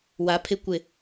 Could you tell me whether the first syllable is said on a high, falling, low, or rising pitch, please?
low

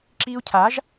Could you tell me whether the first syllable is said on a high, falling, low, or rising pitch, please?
high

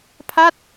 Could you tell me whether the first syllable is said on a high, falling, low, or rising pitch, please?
falling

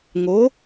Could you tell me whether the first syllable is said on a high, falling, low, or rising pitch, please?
rising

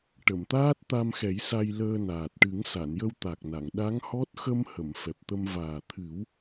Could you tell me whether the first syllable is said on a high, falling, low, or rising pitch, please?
low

